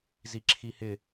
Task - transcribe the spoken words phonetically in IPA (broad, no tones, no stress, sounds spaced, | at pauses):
z i ǁʰ i h ɪ